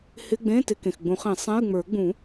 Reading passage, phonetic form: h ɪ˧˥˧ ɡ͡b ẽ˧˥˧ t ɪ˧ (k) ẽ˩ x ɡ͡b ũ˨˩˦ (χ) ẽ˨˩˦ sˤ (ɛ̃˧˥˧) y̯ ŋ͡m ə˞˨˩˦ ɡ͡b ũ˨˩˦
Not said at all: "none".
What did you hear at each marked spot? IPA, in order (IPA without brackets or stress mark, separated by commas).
k, χ, ɛ̃˧˥˧